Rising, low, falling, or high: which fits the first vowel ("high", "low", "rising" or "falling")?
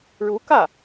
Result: rising